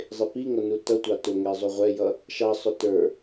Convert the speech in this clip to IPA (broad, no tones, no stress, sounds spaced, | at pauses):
zˤ ɪ p i ŋ ʌ n u t ʌ tʷ ɑ t ʊ ŋ ɛ zˤ u ʁʷ ɛ j ʌ | ʃ ɑ sˤ ʊ t ə˞